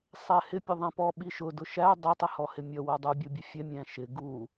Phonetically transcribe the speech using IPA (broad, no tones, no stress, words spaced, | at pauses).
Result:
sˤɛhɪ pʲʊðˤɛ̃pɔ ɓiʃʊ dʊʃæ dˤɪ tˤɪhɔhɪmʲʌ wʊdˤu bʲubʲəfʲɛ mʲæ̃ʃɪ ɡu